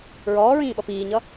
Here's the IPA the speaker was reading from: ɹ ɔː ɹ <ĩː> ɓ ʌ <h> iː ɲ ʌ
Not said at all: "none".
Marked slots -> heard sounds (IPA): ĩː, p

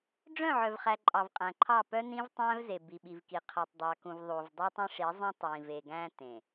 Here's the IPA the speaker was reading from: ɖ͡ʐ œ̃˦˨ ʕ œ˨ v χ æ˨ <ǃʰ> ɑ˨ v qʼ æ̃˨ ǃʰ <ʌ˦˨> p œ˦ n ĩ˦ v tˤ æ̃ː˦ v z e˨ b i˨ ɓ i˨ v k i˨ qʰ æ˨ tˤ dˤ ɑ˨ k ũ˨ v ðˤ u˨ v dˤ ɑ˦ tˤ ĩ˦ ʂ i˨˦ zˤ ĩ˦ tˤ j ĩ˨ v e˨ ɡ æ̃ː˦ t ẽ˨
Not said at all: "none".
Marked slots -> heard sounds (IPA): ǃʼ, ɑ˦˨

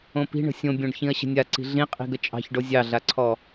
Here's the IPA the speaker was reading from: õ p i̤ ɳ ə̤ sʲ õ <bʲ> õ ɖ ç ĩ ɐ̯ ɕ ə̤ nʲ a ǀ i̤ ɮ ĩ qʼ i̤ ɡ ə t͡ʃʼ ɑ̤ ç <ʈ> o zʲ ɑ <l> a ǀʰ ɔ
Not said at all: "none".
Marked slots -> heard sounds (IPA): bʲ, ɖ, ɮ

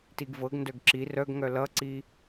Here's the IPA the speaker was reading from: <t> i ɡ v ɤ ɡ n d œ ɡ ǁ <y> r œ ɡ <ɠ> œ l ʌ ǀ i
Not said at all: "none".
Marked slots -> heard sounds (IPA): t, i, ŋ

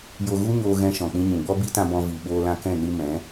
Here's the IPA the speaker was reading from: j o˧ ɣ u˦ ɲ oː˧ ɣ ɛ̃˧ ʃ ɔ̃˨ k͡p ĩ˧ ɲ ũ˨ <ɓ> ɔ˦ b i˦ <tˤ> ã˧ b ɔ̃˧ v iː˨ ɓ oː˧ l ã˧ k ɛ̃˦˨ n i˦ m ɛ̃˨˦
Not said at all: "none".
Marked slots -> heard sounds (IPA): ɡ͡b, t

